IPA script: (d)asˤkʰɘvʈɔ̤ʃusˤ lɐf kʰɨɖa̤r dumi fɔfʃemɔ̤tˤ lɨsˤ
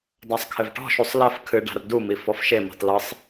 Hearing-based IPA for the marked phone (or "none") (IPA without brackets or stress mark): d